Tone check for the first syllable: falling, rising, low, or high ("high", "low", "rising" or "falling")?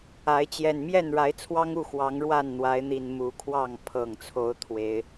rising